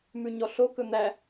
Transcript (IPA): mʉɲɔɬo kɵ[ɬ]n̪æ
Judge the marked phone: incorrect: none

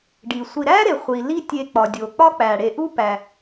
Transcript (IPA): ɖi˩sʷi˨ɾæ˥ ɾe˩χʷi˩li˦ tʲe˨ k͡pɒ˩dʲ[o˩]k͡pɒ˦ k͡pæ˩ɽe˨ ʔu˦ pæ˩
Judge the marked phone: correct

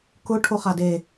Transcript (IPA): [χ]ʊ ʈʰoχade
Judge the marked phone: incorrect: k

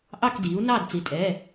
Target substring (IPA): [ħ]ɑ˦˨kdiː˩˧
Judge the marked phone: incorrect: ʔ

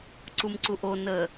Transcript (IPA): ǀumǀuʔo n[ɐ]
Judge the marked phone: incorrect: ə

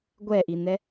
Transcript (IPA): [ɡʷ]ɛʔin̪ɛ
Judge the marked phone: correct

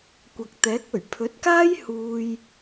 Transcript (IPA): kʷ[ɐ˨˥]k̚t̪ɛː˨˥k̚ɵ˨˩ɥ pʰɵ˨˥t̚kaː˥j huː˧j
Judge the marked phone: incorrect: ɐ˨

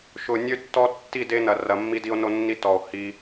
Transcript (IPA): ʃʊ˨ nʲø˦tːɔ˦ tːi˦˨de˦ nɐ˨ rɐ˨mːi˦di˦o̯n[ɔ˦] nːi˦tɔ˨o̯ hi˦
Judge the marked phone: incorrect: o˦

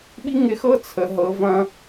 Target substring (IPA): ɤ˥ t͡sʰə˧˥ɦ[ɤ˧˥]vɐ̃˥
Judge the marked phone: correct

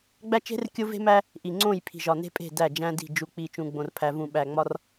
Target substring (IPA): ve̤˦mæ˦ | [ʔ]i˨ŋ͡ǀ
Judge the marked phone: correct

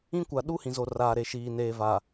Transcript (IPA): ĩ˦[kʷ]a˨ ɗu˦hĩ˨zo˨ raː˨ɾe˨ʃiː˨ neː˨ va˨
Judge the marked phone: correct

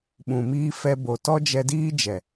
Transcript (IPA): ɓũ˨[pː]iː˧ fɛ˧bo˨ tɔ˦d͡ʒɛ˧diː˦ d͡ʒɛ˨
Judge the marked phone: incorrect: m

